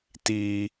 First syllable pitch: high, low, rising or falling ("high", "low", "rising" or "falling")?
high